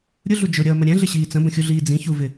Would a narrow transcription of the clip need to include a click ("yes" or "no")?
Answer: no